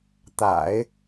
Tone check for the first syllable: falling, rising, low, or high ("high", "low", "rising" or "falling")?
low